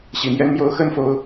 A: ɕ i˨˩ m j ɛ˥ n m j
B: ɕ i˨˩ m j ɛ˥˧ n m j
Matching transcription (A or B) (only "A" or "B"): A